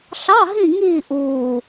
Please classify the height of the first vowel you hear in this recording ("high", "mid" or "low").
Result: low